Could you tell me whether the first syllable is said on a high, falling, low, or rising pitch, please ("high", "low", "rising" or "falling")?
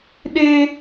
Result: high